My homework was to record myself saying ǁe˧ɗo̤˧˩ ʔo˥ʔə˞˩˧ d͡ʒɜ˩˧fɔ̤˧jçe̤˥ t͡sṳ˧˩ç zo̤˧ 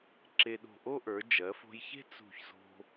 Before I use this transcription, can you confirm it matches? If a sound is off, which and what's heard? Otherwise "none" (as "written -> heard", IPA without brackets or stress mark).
ɔ̤˧ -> o̤˧